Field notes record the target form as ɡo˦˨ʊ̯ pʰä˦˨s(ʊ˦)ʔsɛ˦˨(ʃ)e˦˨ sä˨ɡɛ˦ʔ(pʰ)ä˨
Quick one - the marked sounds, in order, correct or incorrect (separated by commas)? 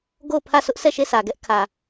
correct, correct, incorrect